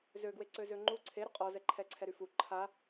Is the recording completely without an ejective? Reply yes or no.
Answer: no